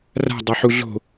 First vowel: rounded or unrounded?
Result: unrounded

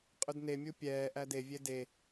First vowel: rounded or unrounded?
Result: rounded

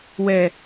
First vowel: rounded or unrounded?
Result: unrounded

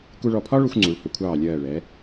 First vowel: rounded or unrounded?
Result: rounded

